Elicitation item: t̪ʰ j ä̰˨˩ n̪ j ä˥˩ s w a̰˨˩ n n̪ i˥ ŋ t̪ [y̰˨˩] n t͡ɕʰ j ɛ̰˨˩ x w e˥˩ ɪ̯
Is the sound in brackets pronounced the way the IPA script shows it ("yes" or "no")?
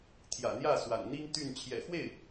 no